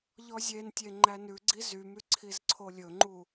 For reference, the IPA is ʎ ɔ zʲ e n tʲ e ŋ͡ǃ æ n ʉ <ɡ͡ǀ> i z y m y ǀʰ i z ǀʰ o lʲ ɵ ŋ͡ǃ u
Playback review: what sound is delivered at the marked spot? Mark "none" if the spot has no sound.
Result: ɡ͡ǀ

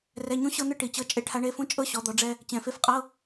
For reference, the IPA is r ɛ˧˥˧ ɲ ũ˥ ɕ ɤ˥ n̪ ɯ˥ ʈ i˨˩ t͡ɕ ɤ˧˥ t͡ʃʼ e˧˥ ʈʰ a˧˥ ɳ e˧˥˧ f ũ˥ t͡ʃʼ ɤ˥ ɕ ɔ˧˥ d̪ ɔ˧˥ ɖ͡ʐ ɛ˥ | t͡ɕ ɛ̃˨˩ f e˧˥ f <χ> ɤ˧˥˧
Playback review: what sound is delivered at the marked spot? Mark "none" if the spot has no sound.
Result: qʼ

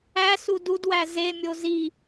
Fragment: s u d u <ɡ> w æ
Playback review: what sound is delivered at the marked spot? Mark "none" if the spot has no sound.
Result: d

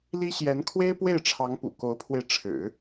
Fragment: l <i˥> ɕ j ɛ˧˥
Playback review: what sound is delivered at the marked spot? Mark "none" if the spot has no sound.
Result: i˥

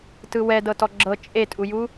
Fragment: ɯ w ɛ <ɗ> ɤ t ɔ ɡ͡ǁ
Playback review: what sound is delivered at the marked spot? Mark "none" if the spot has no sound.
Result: d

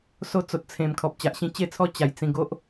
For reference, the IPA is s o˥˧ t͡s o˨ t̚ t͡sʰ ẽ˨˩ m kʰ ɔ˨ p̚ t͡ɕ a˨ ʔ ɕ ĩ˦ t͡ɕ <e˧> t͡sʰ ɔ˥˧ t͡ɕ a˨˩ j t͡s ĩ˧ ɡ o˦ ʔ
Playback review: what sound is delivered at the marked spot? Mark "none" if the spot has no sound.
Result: e˥˧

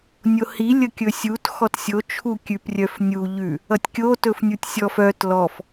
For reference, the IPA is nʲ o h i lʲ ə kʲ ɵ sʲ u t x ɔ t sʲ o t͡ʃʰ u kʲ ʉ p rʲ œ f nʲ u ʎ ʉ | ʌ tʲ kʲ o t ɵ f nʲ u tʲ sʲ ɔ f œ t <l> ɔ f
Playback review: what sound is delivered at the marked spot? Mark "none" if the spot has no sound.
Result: l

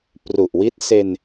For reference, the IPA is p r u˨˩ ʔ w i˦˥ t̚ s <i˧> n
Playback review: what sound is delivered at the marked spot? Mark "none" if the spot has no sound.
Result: e˧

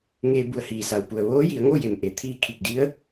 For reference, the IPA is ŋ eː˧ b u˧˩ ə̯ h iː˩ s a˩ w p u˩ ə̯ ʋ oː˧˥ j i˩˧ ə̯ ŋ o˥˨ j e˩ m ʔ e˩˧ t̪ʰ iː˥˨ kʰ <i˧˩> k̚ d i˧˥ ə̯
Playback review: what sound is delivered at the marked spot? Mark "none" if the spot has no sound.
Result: i˧˩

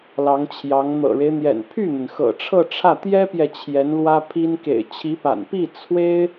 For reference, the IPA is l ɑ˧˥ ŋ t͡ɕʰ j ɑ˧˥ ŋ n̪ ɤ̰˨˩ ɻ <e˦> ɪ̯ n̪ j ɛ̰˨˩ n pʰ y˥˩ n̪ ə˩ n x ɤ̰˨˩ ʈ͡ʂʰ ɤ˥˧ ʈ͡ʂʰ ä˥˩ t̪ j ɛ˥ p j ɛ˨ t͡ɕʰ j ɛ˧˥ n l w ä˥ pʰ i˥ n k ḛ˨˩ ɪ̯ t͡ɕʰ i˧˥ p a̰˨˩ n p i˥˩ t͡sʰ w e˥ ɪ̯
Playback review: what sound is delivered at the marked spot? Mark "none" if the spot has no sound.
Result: e˦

